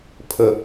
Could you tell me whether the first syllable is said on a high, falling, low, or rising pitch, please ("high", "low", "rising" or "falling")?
low